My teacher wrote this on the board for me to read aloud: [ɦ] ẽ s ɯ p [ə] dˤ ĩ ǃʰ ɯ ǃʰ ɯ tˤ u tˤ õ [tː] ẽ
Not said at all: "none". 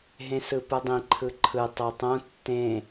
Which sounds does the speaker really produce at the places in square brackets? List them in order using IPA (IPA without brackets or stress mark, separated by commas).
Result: ɦ, ɯ, tː